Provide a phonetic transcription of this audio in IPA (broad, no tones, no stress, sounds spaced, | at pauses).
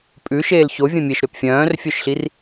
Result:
pʼ ʉ ʃ eː l ç o vʲ œ̃ mʲ e ʃ ɾ ø p fʲ œ̃ː r fʲ œ ʃ ɬ i r